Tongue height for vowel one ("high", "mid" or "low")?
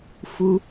high